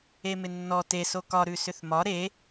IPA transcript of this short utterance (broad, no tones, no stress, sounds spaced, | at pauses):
e m ɪ nː ɔ t e s o k ɒ ɾ ʉ s ʏ θ m ɒ ɾ e